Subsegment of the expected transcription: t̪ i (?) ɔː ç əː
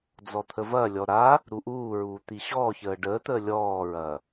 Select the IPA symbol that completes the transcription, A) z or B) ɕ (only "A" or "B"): B